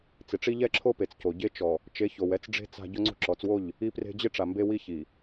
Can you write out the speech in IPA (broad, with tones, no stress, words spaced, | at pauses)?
t͡sɪ˨ʈ͡ʂi˦ʎɛ˦ǁʰo˦ pe˨t͡sco˨ ɟe˦t͡ʃɔ˨ | t͡ʃe˨˦ço˨wɛ˦t͡sɖ͡ʐe̤˦ t͡sa̤˦ ɟʊ˦ŋ͡ǀo̤˦ǁɔ˨˦t͡swo˦˨ʎ | i˦pre̤˦ d͡ʑɪ˦ʈ͡ʂa˨ mbe˦ wi˦çi˨